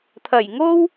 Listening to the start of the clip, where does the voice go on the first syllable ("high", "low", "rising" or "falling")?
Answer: low